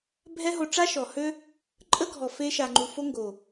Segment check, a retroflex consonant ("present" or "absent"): present